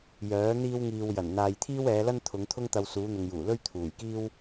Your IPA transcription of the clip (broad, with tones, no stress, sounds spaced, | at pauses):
j œː˨˥ n̪ iː˥ w ŋ iː˨ w j ɐ˨˩ n n̪ aː˨ j t̪ʰ iː˥ w ɛː˨˧ l ɐ˥ n t̪ʰ ʊ˨˧ ŋ t̪ʰ ʊ˥ ŋ t̪ ɐ˧ w s uː˨˧ n̪ ʊ˨ ŋ j uː˨˩ l ɵ˥ ɥ t̪ʰ uː˨˩ j k iː˥ w